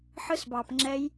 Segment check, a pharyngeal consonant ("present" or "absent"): present